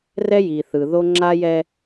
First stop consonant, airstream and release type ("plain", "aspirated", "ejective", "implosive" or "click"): click